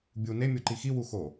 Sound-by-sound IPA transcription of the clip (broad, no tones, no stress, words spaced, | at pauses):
bʲu nemʲoǃi xi wuxo